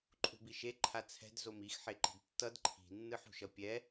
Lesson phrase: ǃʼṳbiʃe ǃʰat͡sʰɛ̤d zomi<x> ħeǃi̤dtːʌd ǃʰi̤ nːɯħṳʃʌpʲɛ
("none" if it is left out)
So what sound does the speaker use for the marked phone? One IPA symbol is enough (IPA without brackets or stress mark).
x